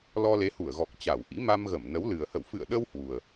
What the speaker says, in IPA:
lɔ˧le˨˦hu˧˩ə̯ɣɔ˨˩k̚ t͡ɕa˧˩wʔḭ˧˥ ma˧mɣə˧˩mnə˨˦wlɨ˨˩ə̯ hə̰˧˨wfɨ̰˧˨ə̯ɗə˧w hwu˨˩ə̯

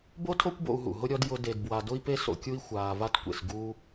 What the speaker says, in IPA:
bo˥tʰo˥kʷbo̰˧u̯ɦṵ˩ ɦʊ˥ɾʲɔ˥d jʊ˥ de˧dbwa˧dʊ˥i̯pe˥ so̰˧kʲu˥i̯ xʷaː˧va˥tkʷḛ˧s ɡu˥

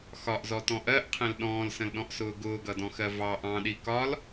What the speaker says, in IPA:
xɒʔzɔtɔ̃ ʔɜʔqʰɛ̃l ɗɔ̃ːlsə̃lɗɔ̃ʔsʊː ɡʊːɡʌdɔ̃xɜ vɑʔ ɑ̃ɗi kɒl

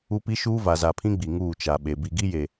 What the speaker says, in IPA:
u˦pi˦ʃuː˦ va˨za˨pʰĩ˦ɡ͡bi˨ ŋuː˦˨t͡ʃa˨ɓe˨ bi˨ɡi˦je˨

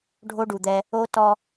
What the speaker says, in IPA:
ɖʱo˦ɖu˨d̪ɛ˦ | o˦ tɔ˦

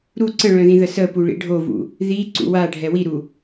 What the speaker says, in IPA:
ɾu ǀə̃ɭœ̃ðĩðə səpuɭḭ ɖʱovṵ | ðiǀṵ waɖʱɛ wiɾu

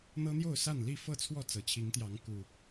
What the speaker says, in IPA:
n̪ɤ˦n̪jo˥˨ʊ̯sa˥˨n li˥˨fɤ˥˨t͡sʰwɔ˥˨ t͡sɤ˨˩t͡ɕʰi˨˦ŋt̪jɑ˨˦ŋ ku˨˩

